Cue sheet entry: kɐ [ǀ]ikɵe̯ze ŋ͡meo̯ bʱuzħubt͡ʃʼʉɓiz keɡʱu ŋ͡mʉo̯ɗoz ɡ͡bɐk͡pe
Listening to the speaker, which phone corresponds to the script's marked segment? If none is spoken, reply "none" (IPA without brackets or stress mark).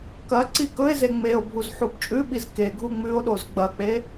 ǀ